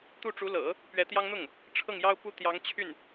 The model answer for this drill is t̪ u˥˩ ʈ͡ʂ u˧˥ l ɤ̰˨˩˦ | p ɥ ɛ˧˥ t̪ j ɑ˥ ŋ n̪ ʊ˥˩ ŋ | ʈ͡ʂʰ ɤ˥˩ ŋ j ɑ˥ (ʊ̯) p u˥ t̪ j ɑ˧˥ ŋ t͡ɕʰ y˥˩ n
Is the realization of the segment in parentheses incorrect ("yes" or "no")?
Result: no